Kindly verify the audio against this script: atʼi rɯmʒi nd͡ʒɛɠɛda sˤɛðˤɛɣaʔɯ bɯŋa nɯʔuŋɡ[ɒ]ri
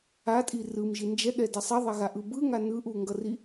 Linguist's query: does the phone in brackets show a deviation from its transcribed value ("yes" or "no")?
yes